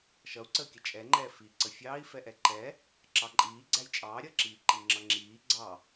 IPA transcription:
ʃʌu̯ǀəːkʲə t͡ʃʼɛŋ͡ǃɛː fi ǀəfʲɑːi̯ fɛʔɛǃɛ | ǁɑǃʼiː ɡ͡ǀæjt͡ʃʼɑː ɾʲʌǁiːǃi ŋ͡ǁʌŋ͡ǁiː ɡ͡ǀɑ

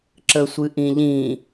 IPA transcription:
ǁəsʷɨʔĩʎĩ

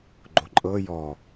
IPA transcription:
ɡ͡ǃoǃʼɤ jɔ

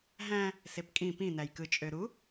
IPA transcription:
ɦæ̃ | sepkʼĩ pĩ næjkɯ t͡ʃʼøɾu

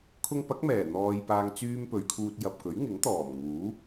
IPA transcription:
kʰʊ˧ŋpɐ˨˥k̚mɛː˨˩ n̪ɔː˧jpaː˧ŋ t͡syː˧m pɵ˨˧ɥkʰuː˧t̚ jɐ˨p̚kɵ˨˥ɥŋɪ˨˥ŋ t̪ɔː˨˩m ŋuː˨˥

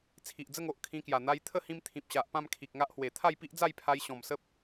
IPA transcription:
t͡sʰi˨ʔd͡zə˥˧ŋo˨ʔ kʰĩ˧kja˨˩ n̪a˧j t̪ʰə˦hĩ˧m t̪ʰĩ˨p̚ɕa˨ʔ pã˥˧mkʰi˨k̚ŋa˦ʔhwe˨˩ t̪ʰa˥˧jpi˦ʔd͡za˥˧jpʰa˧j ɕɔ̃˨˩msə˦p̚

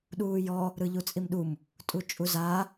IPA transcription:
ɗuːjɔ | ɾɯʎut͡sʼimɗum | tʼut͡ʃʼuzaː

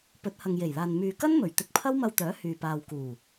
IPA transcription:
pɵ˨˥t̚hɐ˨ŋje˨˩jlaː˨n myː˨kɐ˥nmɵ˨˩ɥ t̪ɪ˧k̚ pʰɐ˥wmɐ˧wt̪œː˨˥ hyː˨paː˨w kuː˨˩

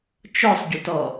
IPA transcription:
t͡ʃɔsˤɟutɔ

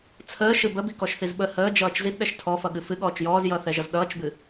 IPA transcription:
t͡sʰəːʃɨ bəbikɔʃθiz ɓə həːd͡ʒʌːt͡ʃ zidɗɛʃ tʰɔfʌɠɨ fɨɠɔːt͡ʃ jɔːzjʌːθɛʒʌz ɗʌːt͡ʃbɨ

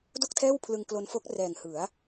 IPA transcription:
do˥˩k̚tʰɛː˥˩wpʰlɯ˧ŋ klo˧nfo˦˥k̚ rɛː˨˩ŋhɯ˩˦a̯

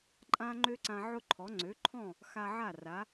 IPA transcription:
ǃʼã˥ ŋ͡ǃø˥ǀã˧ ʕʊ˥ǃʰɔ˩˥ ŋ͡ǀø˩˥ǃʰɔ̃˥˩ | xa˧ʕa˥˩ra˩˥

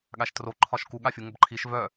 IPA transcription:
ɠaʃtro ǃʰɒʃku ɠafʲuŋəbǃʰiʃ vœ

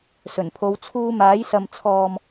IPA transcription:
sɵ˨˩npʰo˨˧w t͡sʰuː˧maː˨˥j sɐ˨mt͡sʰɔː˨m

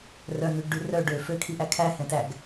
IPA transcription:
rœn̪ʉɡɖʉ rœ ɖø føkʰiʔæ kʰæhɛ̃tæɡ

